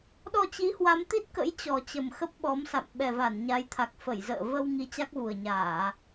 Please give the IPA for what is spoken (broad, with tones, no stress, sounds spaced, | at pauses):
ɗ ɔ˧ t͡ɕ i˨˦ h w a˨˦ m t̪ i˦˥ t̚ k ə̰˧˥ j t͡ɕ ɔ˨˩ t͡ɕ ə˨˩ m x ə˦˥ p̚ ɓ ɔ˨˦ m s a̰˧˨ m ɓ ɛ˨˩ v a˧˩ n ɲ a˨˦ j t̪ʰ a˨˩ k̚ f ə˧˩ j z ə̰ː˧˨ v ə˧ w ŋ i˧ t͡ɕ a˦˥ k̚ v u˨˩ ə̯ ɲ aː˧˩˨